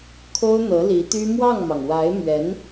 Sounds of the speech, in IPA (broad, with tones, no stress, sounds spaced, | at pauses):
kʰ o˥ ʊ̯ n̪ ɤ˧˥ l i˧˥ t̪ y˥ m w ɑ˥˩ ŋ m ɑ˩ ŋ w a˧˥ ɪ̯ m ɥ ɛ˧˥ n